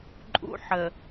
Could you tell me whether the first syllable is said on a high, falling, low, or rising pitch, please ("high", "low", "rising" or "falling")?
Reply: high